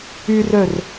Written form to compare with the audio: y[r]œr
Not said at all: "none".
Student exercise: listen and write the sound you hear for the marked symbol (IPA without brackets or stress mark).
r